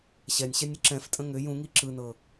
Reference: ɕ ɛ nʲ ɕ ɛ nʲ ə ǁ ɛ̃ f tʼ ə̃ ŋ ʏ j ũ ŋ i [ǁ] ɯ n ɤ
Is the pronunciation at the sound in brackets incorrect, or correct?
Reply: correct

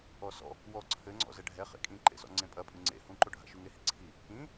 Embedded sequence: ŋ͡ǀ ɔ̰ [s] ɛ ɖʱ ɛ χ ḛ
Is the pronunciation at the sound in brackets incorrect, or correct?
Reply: incorrect: z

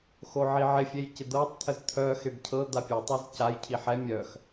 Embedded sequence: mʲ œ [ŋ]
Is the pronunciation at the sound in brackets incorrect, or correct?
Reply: incorrect: x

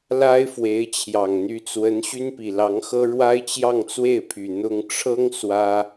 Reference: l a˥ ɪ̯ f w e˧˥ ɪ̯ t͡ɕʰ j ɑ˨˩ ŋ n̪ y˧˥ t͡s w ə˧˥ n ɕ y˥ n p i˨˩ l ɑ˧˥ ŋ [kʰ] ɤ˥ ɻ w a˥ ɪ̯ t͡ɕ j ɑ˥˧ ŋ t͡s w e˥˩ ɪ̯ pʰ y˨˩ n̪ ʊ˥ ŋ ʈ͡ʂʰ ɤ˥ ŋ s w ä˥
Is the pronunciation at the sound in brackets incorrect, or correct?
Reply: incorrect: x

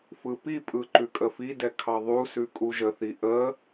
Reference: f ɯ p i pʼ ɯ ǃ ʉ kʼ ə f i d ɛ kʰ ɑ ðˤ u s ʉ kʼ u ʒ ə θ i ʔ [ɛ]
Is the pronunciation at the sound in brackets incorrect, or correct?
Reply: incorrect: ə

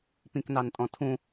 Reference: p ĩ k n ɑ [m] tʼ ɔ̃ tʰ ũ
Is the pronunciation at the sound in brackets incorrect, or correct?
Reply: incorrect: n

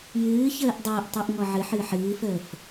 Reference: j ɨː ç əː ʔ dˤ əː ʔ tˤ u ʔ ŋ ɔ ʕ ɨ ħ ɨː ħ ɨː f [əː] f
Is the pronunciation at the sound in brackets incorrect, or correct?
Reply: correct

